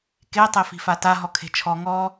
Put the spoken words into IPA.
k e tˤ e f i̤ f a t a ɦ ɔ kʰ e̤ t͡ʃʰ ɔ ŋ ɔ

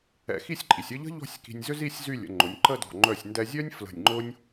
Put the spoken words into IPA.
ɛ̰˧˩ x i˥˧ sʲ ǃʼ i˩˧ sʲ ə˥˧ ʎ ə̤˥ ʎ ɔ̤˥˧ sʲ k i̤˧ nʲ z ʏ˥ z i˥˧ sʲ z y˥˧ lʲ ə̰˩˧ ŋ͡ǃ ʊ˩˧ nʲ ǃ ə˥˧ d ɔ̤˧˩ ŋ͡ǃ œ˧˩ sʲ n d ɛ˧ zʲ œ˥ nʲ f l ə̤˧˩ nʲ ŋ͡ǃ ʊ˥ nʲ

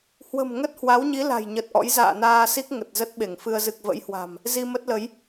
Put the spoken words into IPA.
h w ə̤˨˩ m ŋ ə˦˥ t̚ h w a˨˦ w ɲ i˨˦ l a̤˨˩ j ɲ ə˨˩ t̚ ʔ ɔ̰˧˥ j z a̰ː˧˨ n aː˧ s i˦˥ k̚ ŋ ə˨˩ t̚ z ə˦˥ t̚ ɓ e˧˩ ŋ f ɨ˧ ə̯ z ɨ˨˩ k̚ v ə̰˧˥ j h w a̤˨˩ m | z i˧ m ə˦˥ t̚ l ə˨˦ j

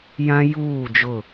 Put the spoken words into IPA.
j ã˦ j uː˦˨ d͡ʒ ʊ˦˨

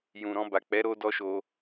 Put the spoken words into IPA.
j ũ˨ ɾ ɔ̃˧ b a˨ k͡p ɛ˨˦ ɾ o˦ d ɔ˦ ʃ o˧

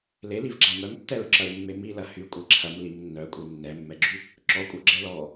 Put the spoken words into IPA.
l e l i v ɡ͡ǁ a m œ m tː ɛ ɹ ǁ ɐ ɹ mː e m i l ɐ h y kʷʼ e ǁʰ ɐ m l i m nː œ kʷʼ i nː ɛ mː ɛ ɡ͡ǁ y | ǁ ɔ kʷʼ œ ɡ͡ǁ ɛ l ɔ

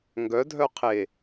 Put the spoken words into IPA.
ŋ ɡ œ dʱ œ qʰ e

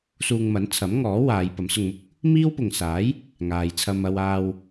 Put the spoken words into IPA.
s uː˧ ŋ m ɐ˨˥ n t͡sʰ ɐ˨˥ m ŋ ɔː˨˥ w aː˨˧ j p ɐ˨˥ m s ʊ˧ ŋ m ʊ˥ k̚ | m iː˥ w p ʊ˨ ŋ s aː˨˥ j | ŋ aː˨ j t͡sʰ ɐ˧ m ɐ˧ w aː˧ w

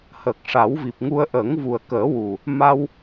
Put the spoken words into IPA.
h əː˨˩ k̚ ʂ a˨˩˦ w v i˨˩ p̚ ŋ u˧ ə̯ ʔ ə˨˩˦ ŋ v u˨˩ ə̯ k əː˨˩˦ w u˨˩ | m a˧ w

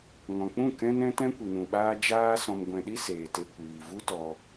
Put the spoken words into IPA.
ŋ ɔ̃˨ k͡p ũ˦˨ k ɛ̃˦ n ɛ̃˦ t ɛ̃˦ kʷ i˨ n ũ˨ ɓ aː˧ d͡ʒ aː˦ s ɔ̃˧ m ɡʷ ɛ̃˧ ɗ i˦ s eː˨ t e˧ kʷ iː˨ v u˦ t ɔ˧

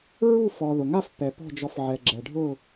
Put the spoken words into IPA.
ɹ u˥˧ f ɔ˨ ð ʊ˨ ŋ a˥˧ f p ɛ˨ p ɔ̤˥˧ d͡ʒ ɔ˧˥ f ʕ ɛ˨ ɡ͡ǁ ɛ˨ ɖʱ ʊ˥˧

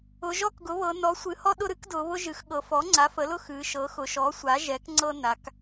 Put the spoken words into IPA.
ʊ˩˧ ʒ ɔ˦ k ɡ ʊ˩˥ β ɤ˩˧ n ɔ˩˥ sʷ ɨ˩˧ h ɔ˦ ɗ ʊ˦ ɾ ɨ˦ k d ʊ˩˧ β ʊ˦ ʒ ɨ˩˧ x ɠ ɤ˩˧ f ɔ˩˥ ŋ͡ǀ a˩˥ f ə˩˥ l ʊ˦ x ɨː˩˧ ʃ ɤː˩˥ x ʊ˩˧ ʃ ɔ˩˥ sʷ a˩˥ ʒ ɛ˩˥ k ŋ͡ǀ ɤ˦ n a˩˧ k

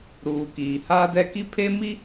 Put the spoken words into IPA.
ɾ uː˨ k iː˨ h aː˦ d ɛ˦ k i˦ pʰ e˦ m i˦

